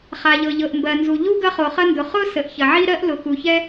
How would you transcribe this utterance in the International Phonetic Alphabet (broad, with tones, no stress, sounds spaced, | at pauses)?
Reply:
χ a˩ ʎ ɤ˩ ʎ ɤ˩ ʔ m b ɜ˩ n z u˩ ʎ u˥ ɡ ɐ˥ χ o˩ χ ɐ˥ n d ʊ˩ χ ʊ˥ s ə˩ ʔ ç ɐ˩ ʕ i˥ ɾ ɜ˥ ʔ l ʊ˩ x u˩ ç ɛ˥